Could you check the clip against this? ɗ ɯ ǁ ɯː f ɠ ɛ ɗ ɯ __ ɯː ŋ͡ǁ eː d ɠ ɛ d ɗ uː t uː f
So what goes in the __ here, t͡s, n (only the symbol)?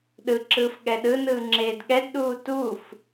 n